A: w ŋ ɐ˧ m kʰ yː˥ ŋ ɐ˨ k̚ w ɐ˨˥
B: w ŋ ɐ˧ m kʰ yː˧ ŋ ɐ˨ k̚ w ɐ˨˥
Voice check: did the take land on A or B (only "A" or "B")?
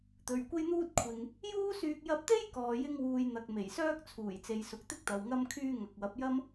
B